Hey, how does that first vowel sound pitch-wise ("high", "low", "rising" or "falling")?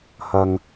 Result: low